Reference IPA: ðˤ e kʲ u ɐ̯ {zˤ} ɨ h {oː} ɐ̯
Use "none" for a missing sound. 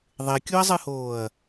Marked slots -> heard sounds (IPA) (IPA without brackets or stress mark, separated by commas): zˤ, oː